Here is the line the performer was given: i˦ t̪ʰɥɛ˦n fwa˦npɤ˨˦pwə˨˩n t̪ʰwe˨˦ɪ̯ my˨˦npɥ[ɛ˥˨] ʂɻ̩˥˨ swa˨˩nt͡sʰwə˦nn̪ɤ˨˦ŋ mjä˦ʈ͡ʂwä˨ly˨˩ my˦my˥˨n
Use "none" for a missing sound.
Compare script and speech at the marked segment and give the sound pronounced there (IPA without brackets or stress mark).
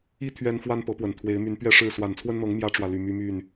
ɛ˥˨